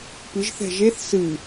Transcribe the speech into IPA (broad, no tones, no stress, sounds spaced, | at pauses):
p ɨ ʒ θ ɛ̤ ʒ e θ s ɨ